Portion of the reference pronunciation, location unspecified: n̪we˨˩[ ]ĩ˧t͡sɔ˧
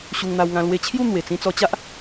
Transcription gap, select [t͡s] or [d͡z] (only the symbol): t͡s